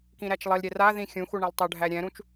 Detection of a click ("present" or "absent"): absent